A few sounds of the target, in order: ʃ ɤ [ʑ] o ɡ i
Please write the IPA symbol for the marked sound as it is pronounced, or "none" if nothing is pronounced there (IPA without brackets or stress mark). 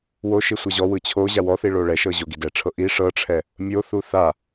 ʑ